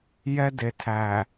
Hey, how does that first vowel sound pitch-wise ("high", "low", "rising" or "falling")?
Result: high